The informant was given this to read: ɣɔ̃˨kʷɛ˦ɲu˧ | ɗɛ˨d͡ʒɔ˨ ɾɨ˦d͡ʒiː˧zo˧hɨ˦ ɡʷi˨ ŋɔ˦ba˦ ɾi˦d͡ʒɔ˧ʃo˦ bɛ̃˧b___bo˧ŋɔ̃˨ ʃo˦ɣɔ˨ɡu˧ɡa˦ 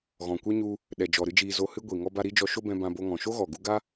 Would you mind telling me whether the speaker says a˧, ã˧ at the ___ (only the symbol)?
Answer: ã˧